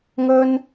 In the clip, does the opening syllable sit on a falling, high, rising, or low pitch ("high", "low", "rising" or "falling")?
high